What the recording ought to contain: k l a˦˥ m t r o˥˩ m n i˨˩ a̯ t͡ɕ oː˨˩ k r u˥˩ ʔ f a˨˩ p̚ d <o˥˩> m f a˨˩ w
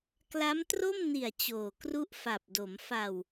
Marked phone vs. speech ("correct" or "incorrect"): incorrect